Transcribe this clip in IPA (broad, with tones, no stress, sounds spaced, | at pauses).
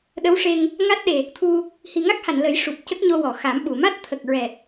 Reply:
ɗ ə˧˥ w ʂ e˧ ŋ | ŋ a˦˥ t̚ ɗ e˨˩ | t̪ʰ u˧ | h i˨˩ ŋ a˦˥ k̚ h a˨˩˨ n l ə˨˩˦ j ʂ u˨˩ p̚ c ə˦˥ k̚ ɲ o˧ w ɔ˨˩˨ x a˨˩˦ m ɓ u˨˩˨ m a˦˥ t̚ t̪ʰ ə˨˩ k̚ ɹ ɛ˨˩ t̚